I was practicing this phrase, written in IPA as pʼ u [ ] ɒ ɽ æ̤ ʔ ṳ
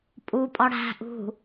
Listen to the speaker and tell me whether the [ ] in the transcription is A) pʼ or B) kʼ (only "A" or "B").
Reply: A